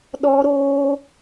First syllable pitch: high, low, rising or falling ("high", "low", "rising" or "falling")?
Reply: high